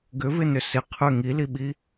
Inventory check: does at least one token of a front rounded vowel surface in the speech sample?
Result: yes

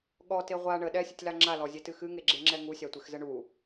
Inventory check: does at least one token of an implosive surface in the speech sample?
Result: yes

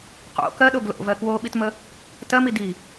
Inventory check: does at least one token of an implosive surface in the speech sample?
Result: yes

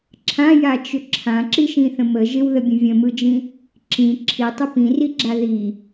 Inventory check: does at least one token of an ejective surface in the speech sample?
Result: no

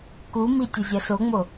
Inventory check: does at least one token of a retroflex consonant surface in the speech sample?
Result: no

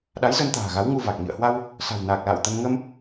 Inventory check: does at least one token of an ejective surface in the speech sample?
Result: no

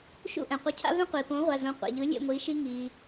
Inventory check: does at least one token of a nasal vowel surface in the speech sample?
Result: yes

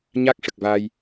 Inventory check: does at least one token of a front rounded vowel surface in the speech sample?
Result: no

